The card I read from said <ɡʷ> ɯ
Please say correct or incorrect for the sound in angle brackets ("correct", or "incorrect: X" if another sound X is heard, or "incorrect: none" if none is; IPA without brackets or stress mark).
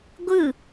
correct